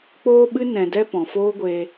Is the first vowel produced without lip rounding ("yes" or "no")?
no